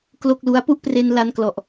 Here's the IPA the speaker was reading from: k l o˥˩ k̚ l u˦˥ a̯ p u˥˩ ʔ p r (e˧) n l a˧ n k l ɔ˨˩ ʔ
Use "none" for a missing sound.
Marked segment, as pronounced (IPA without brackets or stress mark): e˧